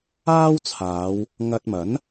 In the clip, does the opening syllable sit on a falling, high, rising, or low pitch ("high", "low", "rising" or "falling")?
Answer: high